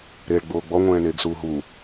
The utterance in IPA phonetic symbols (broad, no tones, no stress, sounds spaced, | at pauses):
ɾ eː ɭ ɡ͡b oː ɡ͡b ɔ ŋʷ ɛ̃ː n eː ɡ s uː ɦ u